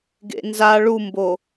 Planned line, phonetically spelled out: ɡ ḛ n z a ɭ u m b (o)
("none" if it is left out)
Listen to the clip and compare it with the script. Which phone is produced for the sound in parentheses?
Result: o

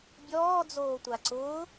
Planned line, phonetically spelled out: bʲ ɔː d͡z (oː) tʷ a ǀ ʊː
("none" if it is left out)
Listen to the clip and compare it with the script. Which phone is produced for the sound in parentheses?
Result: oː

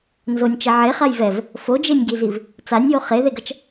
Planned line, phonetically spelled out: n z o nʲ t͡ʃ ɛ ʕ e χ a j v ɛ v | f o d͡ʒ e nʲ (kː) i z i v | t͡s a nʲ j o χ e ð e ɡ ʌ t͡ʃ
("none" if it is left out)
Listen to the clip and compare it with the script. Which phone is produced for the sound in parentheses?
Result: ɡ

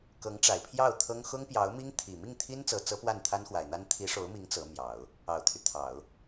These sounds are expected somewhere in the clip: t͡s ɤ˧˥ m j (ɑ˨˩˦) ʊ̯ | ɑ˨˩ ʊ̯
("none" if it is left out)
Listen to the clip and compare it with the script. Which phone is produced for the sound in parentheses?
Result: ɑ˨˩˦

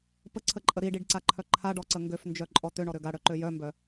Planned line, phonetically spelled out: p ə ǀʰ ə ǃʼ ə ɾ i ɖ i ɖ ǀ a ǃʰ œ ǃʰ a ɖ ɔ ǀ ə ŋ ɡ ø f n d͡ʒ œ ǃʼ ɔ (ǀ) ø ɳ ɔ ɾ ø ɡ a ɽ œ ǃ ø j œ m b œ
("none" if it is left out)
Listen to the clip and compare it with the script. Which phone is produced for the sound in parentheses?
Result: t̪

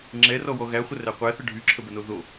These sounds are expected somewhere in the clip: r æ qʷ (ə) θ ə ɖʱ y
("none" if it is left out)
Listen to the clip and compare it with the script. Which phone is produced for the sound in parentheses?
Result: æ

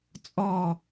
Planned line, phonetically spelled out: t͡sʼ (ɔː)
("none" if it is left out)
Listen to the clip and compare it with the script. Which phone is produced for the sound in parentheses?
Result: ɔː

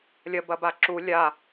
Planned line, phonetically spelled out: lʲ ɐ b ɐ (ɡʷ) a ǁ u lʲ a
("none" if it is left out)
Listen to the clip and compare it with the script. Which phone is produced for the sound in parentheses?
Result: b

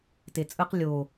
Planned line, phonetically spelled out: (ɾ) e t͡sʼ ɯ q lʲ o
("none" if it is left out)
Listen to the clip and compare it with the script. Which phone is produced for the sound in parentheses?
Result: t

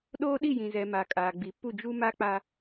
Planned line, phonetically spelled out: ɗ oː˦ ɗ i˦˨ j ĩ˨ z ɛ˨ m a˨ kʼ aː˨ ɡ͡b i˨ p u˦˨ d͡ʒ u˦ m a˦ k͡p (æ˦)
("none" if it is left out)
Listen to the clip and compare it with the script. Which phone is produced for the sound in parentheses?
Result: a˦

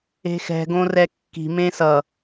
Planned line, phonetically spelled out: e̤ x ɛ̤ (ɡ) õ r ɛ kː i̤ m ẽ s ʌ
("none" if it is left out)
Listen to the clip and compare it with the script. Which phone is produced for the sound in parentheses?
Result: ɡ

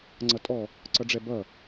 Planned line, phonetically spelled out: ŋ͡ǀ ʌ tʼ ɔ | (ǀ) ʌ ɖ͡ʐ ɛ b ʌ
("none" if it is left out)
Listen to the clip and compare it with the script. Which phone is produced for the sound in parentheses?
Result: ǀ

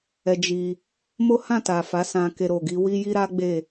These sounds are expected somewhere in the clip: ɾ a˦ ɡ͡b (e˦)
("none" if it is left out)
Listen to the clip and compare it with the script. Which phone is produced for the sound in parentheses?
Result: e˦˨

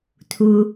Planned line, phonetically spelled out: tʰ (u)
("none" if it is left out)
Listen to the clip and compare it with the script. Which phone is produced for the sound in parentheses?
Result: u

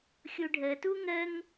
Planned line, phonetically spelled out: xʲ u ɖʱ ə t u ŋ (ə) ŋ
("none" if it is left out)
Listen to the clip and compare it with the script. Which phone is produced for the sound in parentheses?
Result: ə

